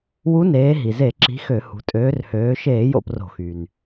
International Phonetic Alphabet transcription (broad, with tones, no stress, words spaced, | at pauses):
wu˨˥neː˩˧ ɦi˩ze˧˩˧ǁi̤˨˥ xø˧˩˧hṳ˩˧tʼøː˨˥r høː˩˧ʃeː˧˩˧ jo̰˥˩pro̤˧˩˧xy˩n